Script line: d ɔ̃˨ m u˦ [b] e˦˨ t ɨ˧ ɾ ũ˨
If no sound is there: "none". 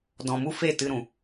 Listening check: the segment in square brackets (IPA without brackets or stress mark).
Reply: f